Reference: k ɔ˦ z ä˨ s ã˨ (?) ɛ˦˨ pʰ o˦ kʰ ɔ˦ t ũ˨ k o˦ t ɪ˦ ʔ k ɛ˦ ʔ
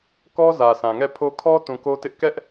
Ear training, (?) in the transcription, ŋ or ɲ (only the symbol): ŋ